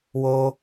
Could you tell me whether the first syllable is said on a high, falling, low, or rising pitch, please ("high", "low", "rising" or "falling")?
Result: high